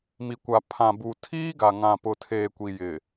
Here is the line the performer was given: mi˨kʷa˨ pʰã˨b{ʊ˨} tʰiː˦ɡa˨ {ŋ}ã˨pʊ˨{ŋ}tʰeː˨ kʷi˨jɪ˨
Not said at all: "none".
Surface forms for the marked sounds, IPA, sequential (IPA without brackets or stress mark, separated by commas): u˨, ŋ, none